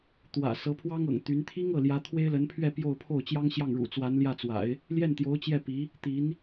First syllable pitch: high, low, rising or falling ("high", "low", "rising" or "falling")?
low